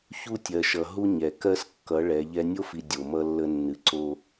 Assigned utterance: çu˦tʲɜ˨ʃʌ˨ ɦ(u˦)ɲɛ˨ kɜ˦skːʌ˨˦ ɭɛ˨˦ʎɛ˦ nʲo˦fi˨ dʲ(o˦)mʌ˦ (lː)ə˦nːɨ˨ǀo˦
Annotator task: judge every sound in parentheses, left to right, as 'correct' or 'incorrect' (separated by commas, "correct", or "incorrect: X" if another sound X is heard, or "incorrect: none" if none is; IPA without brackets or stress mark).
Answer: correct, incorrect: o˨, correct